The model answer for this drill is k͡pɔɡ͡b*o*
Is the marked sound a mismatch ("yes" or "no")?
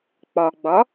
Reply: yes